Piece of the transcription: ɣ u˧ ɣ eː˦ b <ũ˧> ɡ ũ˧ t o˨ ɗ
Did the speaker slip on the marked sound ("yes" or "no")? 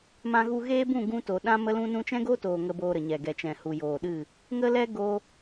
yes